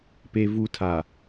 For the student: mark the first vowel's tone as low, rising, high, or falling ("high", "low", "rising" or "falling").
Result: high